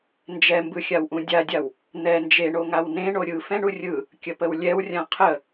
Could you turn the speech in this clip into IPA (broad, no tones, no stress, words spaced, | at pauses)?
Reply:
nd͡ʒɛmbɯxʲawʔũ dʲadʲaw | n̪ɛ nd͡ʒeɳo ŋawnẽ ɳoɾʲɯ fɛ̃ɳurʲɯ | kʲəpəwlʲɛwrʲã qʰə